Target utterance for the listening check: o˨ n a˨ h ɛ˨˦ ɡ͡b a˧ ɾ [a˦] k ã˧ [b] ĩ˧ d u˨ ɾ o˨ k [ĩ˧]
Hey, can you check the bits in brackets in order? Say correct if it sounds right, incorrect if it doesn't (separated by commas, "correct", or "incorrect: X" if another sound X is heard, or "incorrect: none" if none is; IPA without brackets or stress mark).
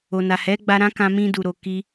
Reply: incorrect: ã˦, incorrect: m, incorrect: i˧